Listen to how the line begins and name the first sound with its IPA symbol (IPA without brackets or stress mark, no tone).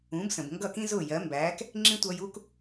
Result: ũ